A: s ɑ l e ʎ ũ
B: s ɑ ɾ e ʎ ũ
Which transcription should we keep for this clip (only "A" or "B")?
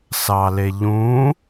A